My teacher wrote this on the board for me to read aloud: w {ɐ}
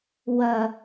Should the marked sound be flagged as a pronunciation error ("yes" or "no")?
no